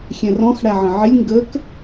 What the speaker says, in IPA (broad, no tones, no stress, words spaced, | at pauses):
xʲɛ̃rɔ̃x ɽæʕə̃ʕɪlʲ ŋɡək